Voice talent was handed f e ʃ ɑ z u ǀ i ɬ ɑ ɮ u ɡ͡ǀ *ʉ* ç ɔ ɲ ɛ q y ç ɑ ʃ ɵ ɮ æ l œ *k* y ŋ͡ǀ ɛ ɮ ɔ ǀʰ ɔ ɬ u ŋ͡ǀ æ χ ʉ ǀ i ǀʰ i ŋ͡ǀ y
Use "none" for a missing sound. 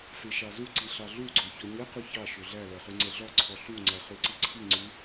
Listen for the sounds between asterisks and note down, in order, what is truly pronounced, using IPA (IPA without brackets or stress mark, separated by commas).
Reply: ø, χ